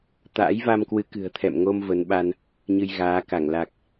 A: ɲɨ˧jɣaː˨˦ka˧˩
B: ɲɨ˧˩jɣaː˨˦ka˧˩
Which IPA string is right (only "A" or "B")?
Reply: A